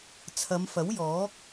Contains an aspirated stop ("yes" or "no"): yes